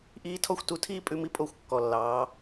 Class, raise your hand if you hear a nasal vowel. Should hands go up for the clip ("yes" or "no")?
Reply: no